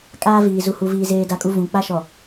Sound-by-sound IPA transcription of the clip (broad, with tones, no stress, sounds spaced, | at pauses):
kʼ aː˦ v iː˨ z u˨ h u˨ v iː˨ z eː˨ d a˨ kʼ u˨ v ũ˨ k͡p a˦ ʃ ɔ˨